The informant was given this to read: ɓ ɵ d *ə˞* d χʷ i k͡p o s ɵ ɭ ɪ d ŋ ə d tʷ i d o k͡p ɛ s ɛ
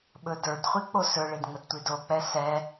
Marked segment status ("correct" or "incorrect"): correct